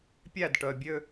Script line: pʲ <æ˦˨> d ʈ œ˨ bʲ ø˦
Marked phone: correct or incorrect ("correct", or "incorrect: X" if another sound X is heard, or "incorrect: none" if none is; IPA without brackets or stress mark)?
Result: correct